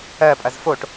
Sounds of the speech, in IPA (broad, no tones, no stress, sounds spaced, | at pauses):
ɜ pʼ ɐ z f o ʈ